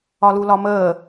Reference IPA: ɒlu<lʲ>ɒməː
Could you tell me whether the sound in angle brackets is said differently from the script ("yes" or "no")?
yes